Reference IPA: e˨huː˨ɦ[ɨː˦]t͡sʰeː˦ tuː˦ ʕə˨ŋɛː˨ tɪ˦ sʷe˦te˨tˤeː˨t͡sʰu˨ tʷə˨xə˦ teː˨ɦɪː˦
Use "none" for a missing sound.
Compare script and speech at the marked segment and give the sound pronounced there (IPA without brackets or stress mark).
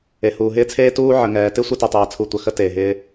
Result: ɪː˦